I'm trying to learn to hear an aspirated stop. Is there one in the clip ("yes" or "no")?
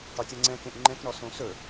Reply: no